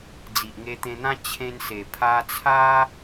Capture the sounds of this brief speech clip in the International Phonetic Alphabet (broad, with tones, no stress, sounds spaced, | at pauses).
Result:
d͡z i˨ ʔ ŋ e˧ t̪ ẽ˧ n̪ ã˦ t͡ɕʰ ẽ˧ n s e˨˩ pʰ a˧ t͡sʰ a˦